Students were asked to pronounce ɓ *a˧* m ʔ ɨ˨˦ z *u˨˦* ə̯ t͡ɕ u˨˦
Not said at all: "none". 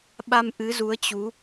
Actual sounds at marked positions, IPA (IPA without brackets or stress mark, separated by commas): a˧, u˨˦